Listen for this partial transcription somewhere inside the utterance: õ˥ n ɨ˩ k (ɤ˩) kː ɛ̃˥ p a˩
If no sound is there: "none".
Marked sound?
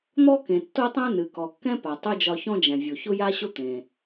ɔ˩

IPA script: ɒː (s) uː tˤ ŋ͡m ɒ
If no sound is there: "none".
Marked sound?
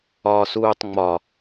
s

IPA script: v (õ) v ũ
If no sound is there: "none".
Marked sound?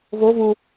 o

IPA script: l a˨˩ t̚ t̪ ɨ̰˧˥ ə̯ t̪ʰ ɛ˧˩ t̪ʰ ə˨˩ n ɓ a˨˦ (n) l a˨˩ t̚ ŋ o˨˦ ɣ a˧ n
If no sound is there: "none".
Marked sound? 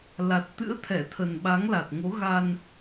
ŋ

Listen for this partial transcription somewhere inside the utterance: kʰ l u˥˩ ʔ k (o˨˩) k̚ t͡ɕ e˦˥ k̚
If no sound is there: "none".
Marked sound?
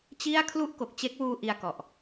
o˨˩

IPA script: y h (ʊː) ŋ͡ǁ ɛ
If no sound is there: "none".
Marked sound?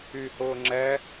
ʊː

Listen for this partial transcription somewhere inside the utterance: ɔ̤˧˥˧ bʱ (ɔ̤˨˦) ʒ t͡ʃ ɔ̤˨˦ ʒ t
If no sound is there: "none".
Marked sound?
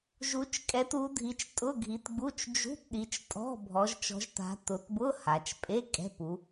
ɔ˨˦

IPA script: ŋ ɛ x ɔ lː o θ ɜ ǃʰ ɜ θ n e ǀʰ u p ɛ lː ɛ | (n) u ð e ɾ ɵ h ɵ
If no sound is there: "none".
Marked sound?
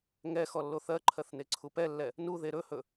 n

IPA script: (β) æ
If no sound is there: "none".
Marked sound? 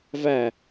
v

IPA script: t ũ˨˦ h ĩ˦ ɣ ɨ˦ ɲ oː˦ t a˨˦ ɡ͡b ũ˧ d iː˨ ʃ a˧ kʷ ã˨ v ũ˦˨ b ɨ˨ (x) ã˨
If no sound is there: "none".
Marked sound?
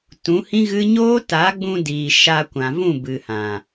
h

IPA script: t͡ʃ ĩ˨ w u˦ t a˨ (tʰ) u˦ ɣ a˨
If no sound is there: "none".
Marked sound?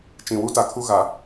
kʰ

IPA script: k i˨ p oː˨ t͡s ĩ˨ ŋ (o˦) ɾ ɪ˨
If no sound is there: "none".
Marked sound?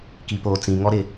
ɔ˦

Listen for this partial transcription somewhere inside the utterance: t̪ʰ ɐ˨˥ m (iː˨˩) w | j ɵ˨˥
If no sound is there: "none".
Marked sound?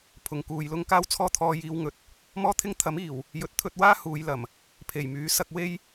iː˨˩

